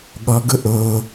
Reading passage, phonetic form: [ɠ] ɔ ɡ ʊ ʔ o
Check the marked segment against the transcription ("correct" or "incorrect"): correct